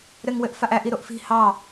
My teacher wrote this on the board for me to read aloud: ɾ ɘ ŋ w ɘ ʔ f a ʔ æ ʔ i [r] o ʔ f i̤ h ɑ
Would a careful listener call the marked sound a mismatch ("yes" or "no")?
yes